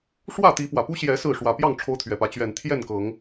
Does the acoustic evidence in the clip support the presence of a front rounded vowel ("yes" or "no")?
no